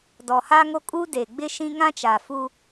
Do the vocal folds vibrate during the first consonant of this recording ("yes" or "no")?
yes